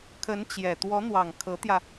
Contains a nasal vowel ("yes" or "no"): no